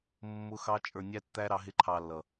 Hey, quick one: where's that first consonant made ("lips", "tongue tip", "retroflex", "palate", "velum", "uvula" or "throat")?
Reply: lips